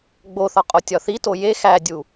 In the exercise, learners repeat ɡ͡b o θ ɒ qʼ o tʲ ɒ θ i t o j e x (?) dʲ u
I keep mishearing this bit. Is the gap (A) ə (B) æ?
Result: B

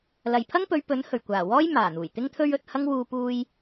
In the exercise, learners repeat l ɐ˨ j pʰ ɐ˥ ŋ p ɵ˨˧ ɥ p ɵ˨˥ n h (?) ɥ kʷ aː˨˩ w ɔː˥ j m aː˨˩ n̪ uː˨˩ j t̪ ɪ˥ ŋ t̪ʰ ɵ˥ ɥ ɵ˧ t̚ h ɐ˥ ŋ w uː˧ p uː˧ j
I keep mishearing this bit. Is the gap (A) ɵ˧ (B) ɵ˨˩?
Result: B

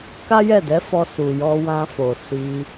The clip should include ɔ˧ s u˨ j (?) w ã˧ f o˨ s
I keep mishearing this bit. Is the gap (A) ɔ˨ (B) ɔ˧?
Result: B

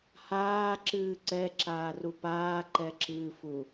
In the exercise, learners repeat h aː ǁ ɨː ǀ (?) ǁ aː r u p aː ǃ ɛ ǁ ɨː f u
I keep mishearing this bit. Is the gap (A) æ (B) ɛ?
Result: B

